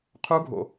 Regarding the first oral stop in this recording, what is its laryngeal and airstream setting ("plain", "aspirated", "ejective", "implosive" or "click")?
aspirated